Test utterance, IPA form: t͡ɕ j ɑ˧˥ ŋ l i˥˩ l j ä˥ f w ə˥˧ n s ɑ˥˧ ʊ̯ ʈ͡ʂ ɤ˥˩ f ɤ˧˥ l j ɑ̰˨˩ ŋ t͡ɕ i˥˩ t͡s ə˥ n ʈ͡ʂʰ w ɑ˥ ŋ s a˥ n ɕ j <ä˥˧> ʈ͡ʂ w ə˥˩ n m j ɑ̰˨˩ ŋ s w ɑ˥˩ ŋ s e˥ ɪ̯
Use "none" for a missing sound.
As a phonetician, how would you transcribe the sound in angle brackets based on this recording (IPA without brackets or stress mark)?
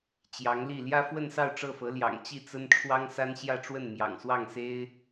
ä˥˧